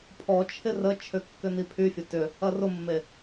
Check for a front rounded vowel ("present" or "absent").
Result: present